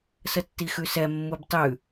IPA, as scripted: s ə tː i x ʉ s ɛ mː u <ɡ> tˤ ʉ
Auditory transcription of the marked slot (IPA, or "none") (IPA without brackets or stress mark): b